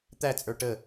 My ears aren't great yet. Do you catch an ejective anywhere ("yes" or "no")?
yes